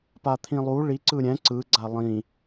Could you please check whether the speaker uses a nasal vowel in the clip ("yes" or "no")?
yes